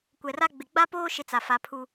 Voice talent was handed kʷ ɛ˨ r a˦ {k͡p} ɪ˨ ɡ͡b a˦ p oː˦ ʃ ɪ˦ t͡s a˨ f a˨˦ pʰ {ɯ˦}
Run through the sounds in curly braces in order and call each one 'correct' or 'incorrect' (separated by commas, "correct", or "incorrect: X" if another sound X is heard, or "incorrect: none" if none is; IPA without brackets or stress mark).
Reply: incorrect: ɡ͡b, incorrect: u˦